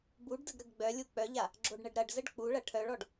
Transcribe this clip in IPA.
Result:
b u ɖ d ə ɡ ɾ ə ɡ ɡ͡b œ lʲ u k͡p œ ʎ a | ɡ͡ǁ o ɖ ɳ ə ɖ ɾ ɐ ɖ z ə ɖ k͡p u ɭ ɐ ʈʰ œ ɭ ɔ ɖ

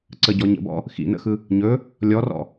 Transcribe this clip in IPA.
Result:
ǀ ə ɟ ɔ ɲ ə̰ b ɔ̰ | x ḭ n ə̰ x ɯ | ɲ ɵ | lʲ ɔ r ɔ̰

